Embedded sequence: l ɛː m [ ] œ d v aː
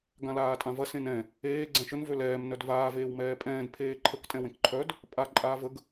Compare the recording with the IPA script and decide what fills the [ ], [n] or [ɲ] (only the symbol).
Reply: n